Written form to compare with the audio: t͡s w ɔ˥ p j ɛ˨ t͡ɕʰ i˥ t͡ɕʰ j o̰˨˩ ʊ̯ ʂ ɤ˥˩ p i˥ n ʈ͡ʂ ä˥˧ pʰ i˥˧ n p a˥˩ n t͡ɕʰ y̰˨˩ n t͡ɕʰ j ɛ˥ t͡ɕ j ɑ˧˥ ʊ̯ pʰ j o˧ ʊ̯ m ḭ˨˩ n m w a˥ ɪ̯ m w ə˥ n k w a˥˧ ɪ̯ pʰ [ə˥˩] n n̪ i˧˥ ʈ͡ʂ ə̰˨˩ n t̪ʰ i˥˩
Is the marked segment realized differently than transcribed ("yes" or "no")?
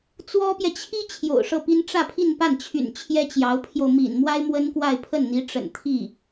no